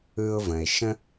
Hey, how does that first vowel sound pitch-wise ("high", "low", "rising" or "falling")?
low